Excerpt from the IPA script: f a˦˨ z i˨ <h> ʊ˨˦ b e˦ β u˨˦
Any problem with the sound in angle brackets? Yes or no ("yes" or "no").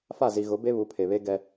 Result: yes